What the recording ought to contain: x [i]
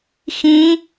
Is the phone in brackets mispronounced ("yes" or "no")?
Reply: yes